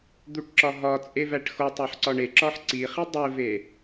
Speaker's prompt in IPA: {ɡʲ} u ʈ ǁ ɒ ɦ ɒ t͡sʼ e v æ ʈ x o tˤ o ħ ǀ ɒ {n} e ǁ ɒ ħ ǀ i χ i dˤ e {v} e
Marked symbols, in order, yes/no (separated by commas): no, no, yes